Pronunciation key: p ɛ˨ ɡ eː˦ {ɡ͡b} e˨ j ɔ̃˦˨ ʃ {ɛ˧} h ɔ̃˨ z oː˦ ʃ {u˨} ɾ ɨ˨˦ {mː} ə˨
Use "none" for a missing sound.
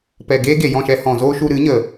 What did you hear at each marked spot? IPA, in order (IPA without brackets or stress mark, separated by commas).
ɡ, ɛ˧, u˧, ɲ